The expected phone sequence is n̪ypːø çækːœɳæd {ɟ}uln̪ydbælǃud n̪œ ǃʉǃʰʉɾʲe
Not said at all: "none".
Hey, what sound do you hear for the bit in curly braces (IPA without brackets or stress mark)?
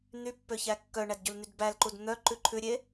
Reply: ɟ